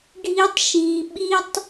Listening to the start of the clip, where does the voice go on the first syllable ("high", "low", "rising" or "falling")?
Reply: high